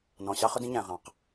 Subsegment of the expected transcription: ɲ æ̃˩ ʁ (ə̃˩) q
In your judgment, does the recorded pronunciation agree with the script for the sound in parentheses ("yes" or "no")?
no